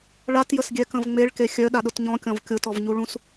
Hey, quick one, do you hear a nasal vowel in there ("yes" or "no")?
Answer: yes